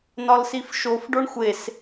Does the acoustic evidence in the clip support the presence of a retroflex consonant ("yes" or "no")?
yes